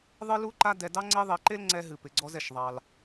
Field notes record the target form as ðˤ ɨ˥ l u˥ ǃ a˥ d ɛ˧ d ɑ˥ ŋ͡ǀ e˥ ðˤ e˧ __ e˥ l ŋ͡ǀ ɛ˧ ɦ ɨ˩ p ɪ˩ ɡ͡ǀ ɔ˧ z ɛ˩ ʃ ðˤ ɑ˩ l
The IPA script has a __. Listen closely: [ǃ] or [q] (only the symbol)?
ǃ